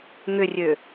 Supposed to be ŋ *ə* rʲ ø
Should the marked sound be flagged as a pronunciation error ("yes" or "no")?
yes